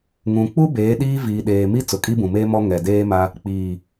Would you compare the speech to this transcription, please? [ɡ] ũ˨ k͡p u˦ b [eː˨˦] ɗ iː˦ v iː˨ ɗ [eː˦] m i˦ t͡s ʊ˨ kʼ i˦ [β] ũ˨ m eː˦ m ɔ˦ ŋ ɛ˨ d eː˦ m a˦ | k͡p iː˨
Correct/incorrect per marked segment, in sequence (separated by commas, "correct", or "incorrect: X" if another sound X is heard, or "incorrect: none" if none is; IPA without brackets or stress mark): incorrect: ŋ, correct, incorrect: eː˨, incorrect: b